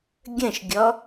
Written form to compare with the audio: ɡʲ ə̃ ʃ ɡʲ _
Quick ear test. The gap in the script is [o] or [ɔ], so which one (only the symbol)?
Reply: ɔ